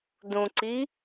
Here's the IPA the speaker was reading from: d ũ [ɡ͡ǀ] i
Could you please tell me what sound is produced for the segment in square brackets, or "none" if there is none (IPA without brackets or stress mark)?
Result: ǀ